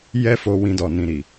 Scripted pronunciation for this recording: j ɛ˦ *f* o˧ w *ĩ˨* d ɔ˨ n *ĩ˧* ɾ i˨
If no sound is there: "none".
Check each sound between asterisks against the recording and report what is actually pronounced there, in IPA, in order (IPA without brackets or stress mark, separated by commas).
f, ĩ˧, ĩ˨